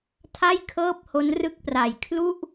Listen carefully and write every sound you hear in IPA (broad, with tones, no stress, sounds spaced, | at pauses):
tʰ a˥˩ j kʰ ɤː˥˩ p̚ h o˦˥ n r ɯ˥˩ k̚ p r a˨˩ j kʰ l u˥˩ ʔ